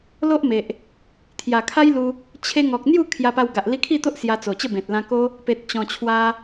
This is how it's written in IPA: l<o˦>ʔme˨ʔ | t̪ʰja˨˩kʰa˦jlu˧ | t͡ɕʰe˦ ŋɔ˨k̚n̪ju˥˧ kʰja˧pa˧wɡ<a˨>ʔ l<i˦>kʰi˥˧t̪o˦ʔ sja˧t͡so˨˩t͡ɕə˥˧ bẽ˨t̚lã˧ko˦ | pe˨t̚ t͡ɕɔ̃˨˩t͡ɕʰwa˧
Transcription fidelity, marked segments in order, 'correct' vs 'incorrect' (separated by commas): correct, correct, incorrect